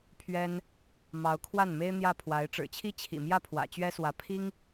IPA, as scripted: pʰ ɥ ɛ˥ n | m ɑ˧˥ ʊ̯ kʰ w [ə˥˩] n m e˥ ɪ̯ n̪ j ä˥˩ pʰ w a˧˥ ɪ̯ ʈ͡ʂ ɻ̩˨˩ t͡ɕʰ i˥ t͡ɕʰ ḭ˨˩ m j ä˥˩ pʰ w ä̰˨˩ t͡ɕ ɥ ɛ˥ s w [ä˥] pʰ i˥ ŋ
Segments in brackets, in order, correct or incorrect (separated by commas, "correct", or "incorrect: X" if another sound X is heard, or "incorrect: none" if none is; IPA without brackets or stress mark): incorrect: a˥˩, incorrect: ä˧˥